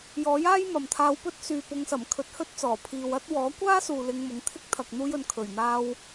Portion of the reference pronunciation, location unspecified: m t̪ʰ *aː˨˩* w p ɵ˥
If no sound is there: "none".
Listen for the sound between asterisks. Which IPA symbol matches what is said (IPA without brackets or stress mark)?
aː˧